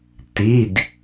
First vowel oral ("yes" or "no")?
yes